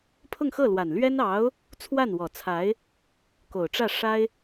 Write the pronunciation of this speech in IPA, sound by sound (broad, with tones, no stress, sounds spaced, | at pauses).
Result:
pʰ ʊ˥˧ ŋ x ɤ˥˩ l w a˨˩ n l ɥ ɛ˥ n ɑ˧˥ ʊ̯ | t͡sʰ w a˥˩ n w ɔ˨˩ t͡sʰ a˧˥ ɪ̯ | k o˨˩ ʊ̯ ʈ͡ʂ ä˥˩ ʂ a˥ ɪ̯